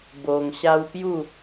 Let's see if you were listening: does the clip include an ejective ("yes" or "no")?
no